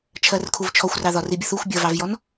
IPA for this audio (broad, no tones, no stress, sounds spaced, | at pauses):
t͡ʃʰ ɜ r kʰ u v t͡ʃʰ ɔ xʷ r ɑ ð ɒ r i bʲ ʊ θ u xʷ bʲ ʌ v ɑ v j ɔ n